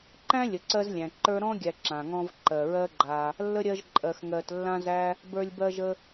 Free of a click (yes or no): no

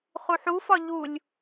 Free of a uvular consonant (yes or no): no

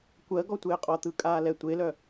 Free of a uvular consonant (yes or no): no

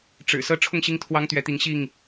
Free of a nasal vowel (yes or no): yes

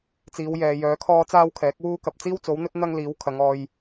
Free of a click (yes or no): yes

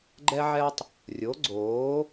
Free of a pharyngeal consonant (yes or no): no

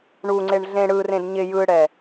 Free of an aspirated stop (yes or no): yes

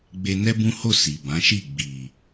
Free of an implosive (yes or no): yes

